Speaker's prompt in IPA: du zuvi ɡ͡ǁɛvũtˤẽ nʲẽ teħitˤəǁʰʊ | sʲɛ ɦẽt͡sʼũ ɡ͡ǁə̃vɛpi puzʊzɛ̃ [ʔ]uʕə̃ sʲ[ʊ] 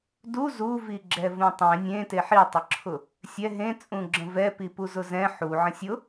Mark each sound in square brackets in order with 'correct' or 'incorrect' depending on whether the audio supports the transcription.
incorrect, correct

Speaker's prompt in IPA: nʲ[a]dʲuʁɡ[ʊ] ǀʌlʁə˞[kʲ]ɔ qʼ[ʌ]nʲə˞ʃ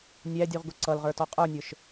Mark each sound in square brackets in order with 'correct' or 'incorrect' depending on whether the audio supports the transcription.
incorrect, correct, incorrect, incorrect

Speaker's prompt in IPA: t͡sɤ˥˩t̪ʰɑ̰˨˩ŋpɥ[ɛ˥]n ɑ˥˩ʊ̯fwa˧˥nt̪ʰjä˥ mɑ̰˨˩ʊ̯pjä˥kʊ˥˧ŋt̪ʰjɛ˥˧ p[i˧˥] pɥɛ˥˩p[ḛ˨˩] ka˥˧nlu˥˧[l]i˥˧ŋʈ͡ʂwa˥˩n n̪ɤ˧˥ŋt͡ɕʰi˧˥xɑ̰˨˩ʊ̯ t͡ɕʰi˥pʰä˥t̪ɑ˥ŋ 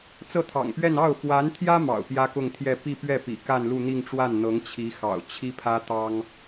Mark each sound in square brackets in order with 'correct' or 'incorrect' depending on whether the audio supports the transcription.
incorrect, incorrect, incorrect, incorrect

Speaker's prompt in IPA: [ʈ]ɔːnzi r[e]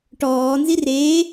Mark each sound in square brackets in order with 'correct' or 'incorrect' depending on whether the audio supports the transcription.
correct, correct

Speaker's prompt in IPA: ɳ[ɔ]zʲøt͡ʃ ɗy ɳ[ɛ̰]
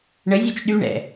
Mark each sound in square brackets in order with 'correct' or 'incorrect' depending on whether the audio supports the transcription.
incorrect, correct

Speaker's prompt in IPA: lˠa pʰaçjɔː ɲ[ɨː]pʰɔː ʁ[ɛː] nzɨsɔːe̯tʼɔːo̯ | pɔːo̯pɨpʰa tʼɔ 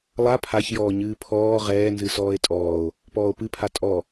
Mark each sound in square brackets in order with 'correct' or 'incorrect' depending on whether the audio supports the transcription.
correct, correct

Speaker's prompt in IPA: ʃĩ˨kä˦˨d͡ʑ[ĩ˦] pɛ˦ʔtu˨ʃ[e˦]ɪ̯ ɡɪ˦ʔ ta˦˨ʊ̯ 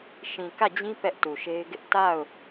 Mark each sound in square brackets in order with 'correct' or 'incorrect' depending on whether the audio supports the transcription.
correct, correct

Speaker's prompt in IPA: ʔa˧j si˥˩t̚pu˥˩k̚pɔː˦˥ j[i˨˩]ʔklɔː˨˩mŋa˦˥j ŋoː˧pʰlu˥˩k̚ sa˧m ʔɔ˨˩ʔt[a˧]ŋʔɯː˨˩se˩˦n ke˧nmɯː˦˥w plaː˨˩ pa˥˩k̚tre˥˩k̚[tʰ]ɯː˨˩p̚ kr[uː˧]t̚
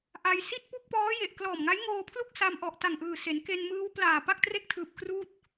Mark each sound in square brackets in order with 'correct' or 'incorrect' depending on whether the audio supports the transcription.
incorrect, incorrect, correct, incorrect

